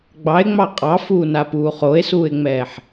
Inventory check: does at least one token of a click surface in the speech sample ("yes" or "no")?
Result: no